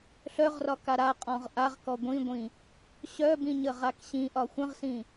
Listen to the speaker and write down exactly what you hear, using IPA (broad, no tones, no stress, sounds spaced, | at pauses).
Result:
ɬ œ ʁ r ɒ k a ɾ a qʼ ɔ̃ ʁ ʔ a ʁ k ɔ ɡʷ ĩ ɡʷ ĩ | ɕ œ b ĩ ɲ ə ʁ a k ɕ ĩ ʔ ɒ xʷ ə̃ ʁ s ĩ